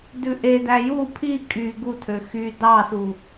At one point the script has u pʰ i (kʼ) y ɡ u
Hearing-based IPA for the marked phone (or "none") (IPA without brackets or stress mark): kʼ